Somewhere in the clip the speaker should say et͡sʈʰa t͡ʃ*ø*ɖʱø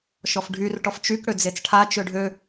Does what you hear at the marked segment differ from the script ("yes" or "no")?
no